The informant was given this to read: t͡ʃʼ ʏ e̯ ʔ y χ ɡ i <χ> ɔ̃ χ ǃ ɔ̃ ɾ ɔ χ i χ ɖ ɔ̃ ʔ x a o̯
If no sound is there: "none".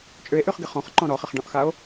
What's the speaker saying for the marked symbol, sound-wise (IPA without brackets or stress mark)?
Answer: χ